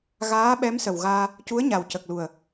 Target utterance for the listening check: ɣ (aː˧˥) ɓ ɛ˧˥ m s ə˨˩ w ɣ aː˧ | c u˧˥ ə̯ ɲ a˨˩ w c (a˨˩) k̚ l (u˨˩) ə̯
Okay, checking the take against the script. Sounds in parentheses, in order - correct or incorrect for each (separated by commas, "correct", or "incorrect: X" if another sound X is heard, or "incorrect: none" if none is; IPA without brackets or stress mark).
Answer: correct, incorrect: ə˨˩, correct